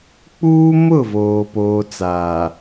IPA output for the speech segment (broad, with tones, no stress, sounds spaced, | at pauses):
k͡p uː˦ m ʊ˦˨ v oː˨ p oː˨ t͡s aː˨